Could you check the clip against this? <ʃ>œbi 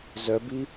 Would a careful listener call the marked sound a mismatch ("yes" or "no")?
yes